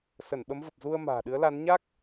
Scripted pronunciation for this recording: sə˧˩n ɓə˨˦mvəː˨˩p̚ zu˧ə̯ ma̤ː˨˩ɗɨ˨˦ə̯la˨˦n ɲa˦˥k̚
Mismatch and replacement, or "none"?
əː˨˩ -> ə˨˩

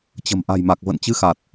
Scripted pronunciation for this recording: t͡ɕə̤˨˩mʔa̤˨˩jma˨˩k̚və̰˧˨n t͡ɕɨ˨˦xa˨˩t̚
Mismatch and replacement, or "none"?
none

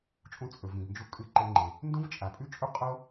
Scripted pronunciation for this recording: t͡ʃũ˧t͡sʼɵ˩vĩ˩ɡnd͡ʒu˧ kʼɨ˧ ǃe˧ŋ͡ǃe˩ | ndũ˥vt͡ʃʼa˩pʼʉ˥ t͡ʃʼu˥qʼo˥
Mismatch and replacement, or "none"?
t͡ʃ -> t͡ʃʼ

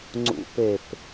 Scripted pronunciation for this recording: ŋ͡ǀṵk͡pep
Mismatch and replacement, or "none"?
k͡p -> p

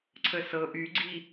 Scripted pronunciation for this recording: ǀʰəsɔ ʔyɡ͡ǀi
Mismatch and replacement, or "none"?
ɔ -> ɤ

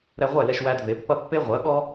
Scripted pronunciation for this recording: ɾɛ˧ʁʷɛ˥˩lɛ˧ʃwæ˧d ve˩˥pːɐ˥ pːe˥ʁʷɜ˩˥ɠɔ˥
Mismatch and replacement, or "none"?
none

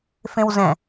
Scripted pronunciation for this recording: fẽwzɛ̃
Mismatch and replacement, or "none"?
none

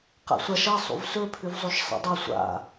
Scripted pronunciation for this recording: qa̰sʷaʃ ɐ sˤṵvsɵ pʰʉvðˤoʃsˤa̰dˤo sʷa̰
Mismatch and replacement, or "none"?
ðˤ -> zˤ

